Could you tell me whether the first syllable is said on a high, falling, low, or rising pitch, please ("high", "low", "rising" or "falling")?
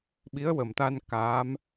rising